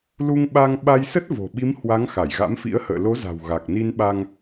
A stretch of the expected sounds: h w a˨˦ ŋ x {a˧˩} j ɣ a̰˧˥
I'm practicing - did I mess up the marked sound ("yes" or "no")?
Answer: no